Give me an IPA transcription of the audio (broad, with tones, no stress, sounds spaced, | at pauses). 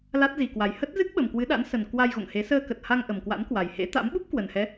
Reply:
l a˦˥ t̚ z i˨˩ k w a˨˩ j h ə˦˥ t̚ z ɨ˦˥ k̚ ɓ ə˨˩ m k w ɨ˨˦ ɗ a̰˧˥ n s ə˨˩ n k w a˧ j ɣ o̰˧˨ ŋ h e˨˦ s əː˧ k ə˨˩ t̚ h a˧ ŋ ʔ ə˨˩ m k w a̰˧˥ n k w a˨˩ j h ḛ˧˥ t̪ a̰˧˥ m ɓ u˦˥ p̚ k w ə˨˩ n h ɛ˨˦